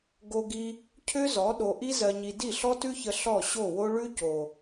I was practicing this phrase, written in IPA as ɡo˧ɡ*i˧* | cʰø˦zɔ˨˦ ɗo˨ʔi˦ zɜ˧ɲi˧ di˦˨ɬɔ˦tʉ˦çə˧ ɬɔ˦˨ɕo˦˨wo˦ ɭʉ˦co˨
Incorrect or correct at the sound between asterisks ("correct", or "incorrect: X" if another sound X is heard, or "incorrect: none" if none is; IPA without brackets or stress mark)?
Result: correct